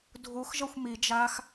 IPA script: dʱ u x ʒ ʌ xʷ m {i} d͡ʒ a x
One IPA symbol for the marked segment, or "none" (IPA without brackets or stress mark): i